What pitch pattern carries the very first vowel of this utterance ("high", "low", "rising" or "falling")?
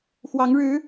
rising